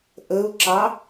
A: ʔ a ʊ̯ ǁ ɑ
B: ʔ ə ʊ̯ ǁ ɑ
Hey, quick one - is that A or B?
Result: B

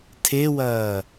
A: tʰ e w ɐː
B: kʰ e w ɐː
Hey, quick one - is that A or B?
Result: A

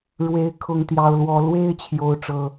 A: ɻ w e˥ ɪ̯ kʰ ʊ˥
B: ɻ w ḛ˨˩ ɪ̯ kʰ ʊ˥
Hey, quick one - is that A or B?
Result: A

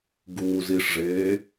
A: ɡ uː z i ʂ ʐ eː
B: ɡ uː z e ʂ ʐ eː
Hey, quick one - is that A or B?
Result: A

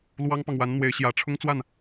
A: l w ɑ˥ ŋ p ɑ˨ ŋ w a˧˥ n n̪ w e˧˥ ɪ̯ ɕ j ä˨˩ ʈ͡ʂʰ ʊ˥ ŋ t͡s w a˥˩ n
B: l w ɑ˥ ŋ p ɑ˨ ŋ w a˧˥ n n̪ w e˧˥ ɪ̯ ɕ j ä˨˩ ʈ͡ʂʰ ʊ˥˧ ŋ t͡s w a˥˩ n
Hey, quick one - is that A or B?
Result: A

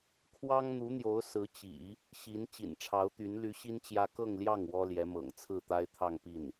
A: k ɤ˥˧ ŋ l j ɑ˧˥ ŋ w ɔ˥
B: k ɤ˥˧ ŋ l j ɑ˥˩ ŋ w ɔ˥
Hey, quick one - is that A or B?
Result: B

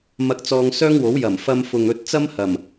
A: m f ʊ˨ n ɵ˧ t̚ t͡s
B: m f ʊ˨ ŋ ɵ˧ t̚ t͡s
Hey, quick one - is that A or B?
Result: B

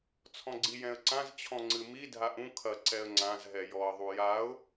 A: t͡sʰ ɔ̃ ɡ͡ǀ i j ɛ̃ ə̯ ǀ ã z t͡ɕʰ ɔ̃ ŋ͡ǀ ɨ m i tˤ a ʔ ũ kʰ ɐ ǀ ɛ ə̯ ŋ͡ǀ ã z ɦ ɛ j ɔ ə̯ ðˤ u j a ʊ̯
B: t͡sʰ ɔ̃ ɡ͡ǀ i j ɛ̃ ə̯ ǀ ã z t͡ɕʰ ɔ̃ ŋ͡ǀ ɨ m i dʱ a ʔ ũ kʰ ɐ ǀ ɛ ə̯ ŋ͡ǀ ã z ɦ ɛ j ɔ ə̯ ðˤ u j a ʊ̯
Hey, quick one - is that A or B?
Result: B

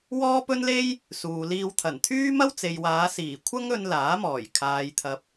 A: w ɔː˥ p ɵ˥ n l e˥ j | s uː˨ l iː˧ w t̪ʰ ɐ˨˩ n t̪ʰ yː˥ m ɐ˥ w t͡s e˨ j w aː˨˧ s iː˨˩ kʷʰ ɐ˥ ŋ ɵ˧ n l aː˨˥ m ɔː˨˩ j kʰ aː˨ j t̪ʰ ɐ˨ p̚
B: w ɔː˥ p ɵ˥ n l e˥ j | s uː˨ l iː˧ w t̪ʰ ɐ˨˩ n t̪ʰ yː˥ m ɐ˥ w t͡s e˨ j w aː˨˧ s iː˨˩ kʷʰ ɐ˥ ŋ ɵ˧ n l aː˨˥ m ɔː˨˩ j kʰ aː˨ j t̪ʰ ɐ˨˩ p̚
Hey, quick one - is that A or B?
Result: A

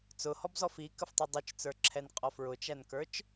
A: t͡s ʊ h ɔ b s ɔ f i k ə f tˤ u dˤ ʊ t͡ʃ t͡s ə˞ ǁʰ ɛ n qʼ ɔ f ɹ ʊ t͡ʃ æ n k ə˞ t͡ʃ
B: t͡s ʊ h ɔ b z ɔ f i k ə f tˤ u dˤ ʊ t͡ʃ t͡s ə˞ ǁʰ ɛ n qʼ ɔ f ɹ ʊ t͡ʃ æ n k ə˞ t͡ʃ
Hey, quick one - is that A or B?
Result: B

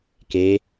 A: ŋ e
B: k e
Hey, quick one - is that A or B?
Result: B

